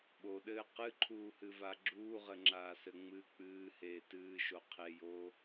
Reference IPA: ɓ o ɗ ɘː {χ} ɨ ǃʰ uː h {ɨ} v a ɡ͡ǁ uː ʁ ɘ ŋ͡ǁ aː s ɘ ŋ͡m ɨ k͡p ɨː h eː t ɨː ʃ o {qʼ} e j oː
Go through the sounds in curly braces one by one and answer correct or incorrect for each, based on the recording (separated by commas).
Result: incorrect, correct, incorrect